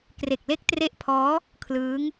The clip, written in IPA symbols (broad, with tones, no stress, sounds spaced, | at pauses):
k r e˨˩ k̚ l e˦˥ k̚ t r e˦˥ ʔ pʰ ɔː˦˥ | kʰ l ɯː˦˥ ŋ